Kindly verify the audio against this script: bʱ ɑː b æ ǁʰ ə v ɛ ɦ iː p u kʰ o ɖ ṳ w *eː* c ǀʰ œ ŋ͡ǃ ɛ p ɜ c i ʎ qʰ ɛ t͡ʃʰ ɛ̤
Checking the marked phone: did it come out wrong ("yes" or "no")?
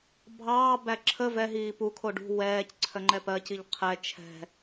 yes